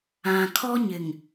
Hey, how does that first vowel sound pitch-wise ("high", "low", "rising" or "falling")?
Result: low